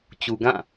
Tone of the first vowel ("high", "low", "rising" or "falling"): low